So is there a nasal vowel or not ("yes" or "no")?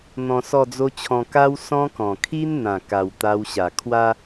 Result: yes